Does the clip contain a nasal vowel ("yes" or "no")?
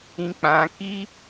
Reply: yes